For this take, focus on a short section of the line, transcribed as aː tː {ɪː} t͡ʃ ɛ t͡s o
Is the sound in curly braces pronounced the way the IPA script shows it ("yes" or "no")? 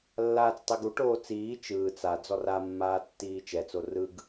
no